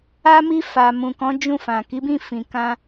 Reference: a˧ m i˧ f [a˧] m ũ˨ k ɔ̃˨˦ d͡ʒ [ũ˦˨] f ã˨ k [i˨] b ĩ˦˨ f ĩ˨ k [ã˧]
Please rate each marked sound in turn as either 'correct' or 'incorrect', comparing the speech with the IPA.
incorrect, correct, incorrect, correct

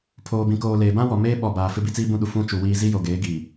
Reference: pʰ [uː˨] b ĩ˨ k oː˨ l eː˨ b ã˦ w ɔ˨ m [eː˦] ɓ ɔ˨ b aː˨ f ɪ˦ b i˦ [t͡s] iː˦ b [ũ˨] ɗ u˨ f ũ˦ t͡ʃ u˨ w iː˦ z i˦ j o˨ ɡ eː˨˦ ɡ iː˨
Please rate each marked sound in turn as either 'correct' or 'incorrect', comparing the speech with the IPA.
incorrect, correct, correct, incorrect

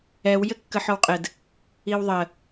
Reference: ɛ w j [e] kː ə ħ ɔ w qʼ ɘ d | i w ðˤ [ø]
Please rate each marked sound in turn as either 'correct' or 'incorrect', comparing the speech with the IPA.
incorrect, incorrect

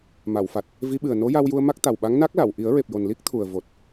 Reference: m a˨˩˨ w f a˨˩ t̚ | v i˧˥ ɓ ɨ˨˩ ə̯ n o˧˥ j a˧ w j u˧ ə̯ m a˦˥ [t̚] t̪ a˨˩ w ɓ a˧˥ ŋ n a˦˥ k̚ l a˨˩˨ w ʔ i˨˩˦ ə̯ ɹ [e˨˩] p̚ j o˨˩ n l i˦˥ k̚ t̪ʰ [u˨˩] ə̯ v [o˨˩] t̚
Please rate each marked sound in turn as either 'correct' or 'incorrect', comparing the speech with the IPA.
incorrect, correct, correct, correct

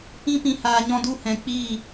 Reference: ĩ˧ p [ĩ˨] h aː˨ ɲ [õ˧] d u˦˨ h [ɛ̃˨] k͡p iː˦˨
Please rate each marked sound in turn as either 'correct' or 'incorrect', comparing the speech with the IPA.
correct, incorrect, correct

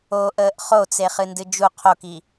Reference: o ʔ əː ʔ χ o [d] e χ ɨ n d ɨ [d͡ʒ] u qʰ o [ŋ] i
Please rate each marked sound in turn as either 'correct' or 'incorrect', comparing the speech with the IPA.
incorrect, correct, incorrect

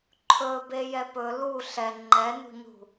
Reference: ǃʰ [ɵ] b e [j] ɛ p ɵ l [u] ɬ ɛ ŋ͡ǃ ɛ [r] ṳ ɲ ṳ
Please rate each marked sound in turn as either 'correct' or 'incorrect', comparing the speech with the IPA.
correct, correct, correct, incorrect

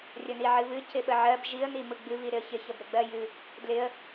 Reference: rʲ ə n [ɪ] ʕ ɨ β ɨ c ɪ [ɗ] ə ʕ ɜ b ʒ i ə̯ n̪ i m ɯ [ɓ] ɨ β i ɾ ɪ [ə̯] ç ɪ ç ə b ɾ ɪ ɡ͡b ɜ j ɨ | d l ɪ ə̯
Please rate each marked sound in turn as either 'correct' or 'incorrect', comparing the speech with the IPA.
incorrect, incorrect, incorrect, correct

